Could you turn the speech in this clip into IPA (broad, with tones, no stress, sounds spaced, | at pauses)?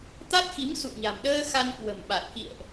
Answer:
t̪ a˦˥ t̚ x i˨˦ m s ṵ˧˨ ə̯ ɲ a̤˨˩ m ɗ əː˧ x a˧ n k w ə̤˨˩ m ɓ a˨˩ t̚ k ḭ˧˨ ə̯ ʔ